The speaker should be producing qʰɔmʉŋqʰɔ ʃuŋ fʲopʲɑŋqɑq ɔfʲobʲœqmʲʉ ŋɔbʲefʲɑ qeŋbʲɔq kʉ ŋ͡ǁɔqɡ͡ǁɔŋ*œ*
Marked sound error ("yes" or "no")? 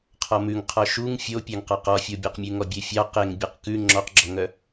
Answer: no